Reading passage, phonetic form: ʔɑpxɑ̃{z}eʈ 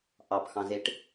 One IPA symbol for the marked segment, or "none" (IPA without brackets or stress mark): z